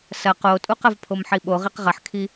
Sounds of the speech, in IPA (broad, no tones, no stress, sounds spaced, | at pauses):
s ɐ q o tʼ u q ɐ v pʰ o m ħ i ɓ o ʁ i q ʁ ɐ ħ kʰ i